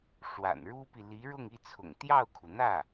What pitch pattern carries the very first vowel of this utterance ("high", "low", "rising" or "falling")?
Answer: low